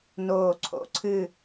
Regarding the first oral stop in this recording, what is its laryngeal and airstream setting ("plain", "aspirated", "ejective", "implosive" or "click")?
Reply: click